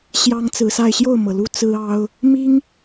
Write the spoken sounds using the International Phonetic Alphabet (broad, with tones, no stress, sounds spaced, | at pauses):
ɕ j ɑ˦ ŋ t͡s ɹ̩˨˦ s a˥˨ ɪ̯ ɕ j o˥˨ ʊ̯ m ɤ˩ l u˦ t͡s ɹ̩˦ ɑ˦ ʊ̯ | m i˦ ŋ